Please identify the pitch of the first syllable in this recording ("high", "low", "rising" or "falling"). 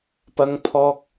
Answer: high